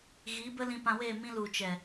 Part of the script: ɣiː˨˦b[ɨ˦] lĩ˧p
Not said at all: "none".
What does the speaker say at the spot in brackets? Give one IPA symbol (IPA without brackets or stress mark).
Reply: ə˦